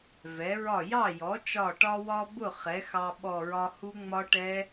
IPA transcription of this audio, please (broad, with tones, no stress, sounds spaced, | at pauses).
v ɛ˩˥ ɹ ɒ˥˩ j ɑ˥˩ j ɔ˩˥ t͡ʃ ɒ˧˩ ʈ ɒ˧ w ɒ˧ b ʊ˥˩ χ ɛ˩˥ x ɑ˧ ɓ ɔ˧˩ ɹ ɒ˧ h u˦˥ ŋ͡m ɒ˦˥ ʈ ɛ˦˥